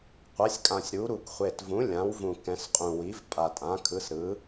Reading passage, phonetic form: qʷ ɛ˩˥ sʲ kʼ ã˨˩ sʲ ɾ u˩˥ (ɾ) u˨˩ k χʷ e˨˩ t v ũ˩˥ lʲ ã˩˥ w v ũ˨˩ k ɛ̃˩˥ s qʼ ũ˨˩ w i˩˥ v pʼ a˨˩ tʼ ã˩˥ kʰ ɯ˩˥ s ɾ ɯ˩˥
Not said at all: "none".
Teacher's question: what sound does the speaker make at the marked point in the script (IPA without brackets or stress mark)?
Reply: ɾ